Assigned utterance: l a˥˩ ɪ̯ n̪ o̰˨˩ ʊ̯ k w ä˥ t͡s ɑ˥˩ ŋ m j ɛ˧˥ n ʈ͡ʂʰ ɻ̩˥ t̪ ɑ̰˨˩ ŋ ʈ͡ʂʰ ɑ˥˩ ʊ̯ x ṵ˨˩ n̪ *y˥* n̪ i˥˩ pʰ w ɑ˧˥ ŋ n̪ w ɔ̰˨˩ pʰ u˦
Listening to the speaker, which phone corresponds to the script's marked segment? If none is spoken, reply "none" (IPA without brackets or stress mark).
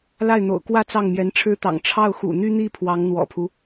y˥